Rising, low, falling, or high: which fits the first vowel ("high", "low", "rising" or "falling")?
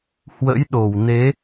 rising